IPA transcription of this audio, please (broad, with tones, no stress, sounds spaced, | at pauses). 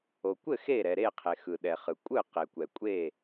o˩ kʷ ɘ˥˩ x e˥˩ ɾ ɛ˩ ɾ e˥˩ qʰ e˩ x ɯ˩ ɗ ɛ˩ χ ɯ˩ kʷʼ ɯ˥˩ q e˩ kʷ ɛ˩ kʷʼ e˥˩